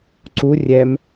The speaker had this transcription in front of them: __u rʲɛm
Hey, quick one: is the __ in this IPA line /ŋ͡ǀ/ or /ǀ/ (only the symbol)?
ǀ